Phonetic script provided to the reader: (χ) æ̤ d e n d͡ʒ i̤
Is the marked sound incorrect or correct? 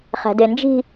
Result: correct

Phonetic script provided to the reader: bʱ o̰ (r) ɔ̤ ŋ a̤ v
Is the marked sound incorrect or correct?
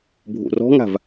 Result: correct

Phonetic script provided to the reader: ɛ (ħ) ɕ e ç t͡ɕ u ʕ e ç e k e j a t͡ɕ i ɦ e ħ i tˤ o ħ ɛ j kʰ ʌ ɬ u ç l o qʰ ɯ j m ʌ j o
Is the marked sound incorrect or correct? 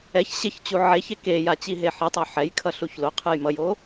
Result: incorrect: ç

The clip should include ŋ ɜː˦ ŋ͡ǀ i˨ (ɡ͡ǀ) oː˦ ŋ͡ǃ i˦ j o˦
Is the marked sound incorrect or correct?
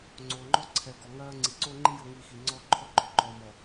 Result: incorrect: ǀ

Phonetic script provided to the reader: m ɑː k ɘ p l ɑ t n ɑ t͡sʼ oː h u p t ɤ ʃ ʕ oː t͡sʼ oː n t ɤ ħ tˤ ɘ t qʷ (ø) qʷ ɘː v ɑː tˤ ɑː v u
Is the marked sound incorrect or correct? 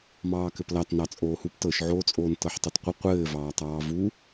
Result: incorrect: ə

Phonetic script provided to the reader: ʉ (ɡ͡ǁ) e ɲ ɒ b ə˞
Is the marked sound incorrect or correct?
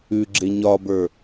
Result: correct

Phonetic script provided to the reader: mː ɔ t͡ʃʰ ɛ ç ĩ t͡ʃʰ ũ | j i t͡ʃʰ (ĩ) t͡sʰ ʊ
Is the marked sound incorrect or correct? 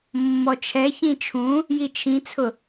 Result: correct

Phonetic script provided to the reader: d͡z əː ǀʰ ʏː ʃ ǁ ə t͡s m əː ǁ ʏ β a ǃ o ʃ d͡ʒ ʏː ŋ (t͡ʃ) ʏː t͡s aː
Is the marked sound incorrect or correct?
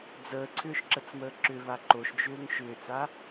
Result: incorrect: ʃ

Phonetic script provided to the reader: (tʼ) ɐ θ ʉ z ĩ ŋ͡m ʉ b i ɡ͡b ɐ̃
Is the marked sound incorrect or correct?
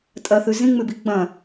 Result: correct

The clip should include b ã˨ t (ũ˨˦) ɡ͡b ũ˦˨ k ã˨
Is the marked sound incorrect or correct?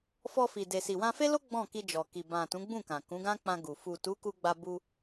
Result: correct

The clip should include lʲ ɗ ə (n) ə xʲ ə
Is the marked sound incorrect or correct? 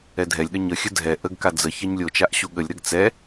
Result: incorrect: ɲ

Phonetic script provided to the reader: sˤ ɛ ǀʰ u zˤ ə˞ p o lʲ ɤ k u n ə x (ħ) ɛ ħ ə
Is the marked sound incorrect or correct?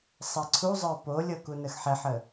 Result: correct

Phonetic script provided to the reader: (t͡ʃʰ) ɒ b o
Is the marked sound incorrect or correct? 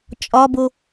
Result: incorrect: t͡ʃʼ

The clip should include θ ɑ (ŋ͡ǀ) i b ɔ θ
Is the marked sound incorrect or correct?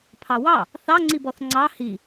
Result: correct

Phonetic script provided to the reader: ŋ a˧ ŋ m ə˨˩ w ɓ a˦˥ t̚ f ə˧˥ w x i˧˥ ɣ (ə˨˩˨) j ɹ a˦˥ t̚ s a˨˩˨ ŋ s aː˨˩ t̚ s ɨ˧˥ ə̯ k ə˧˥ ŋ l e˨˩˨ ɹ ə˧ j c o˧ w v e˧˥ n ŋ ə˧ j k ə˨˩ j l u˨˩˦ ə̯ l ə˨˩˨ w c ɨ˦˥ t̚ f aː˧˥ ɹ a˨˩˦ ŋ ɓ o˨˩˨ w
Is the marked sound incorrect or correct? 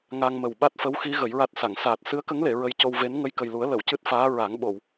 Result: incorrect: ə˨˩˦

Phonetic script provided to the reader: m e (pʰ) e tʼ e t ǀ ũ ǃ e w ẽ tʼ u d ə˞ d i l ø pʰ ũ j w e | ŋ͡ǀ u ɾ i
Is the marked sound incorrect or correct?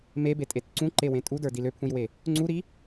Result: incorrect: b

